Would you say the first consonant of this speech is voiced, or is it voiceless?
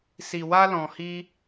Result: voiceless